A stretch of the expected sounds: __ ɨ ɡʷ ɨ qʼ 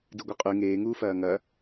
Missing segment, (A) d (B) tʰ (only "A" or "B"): A